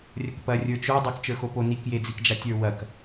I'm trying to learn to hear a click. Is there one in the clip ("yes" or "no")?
no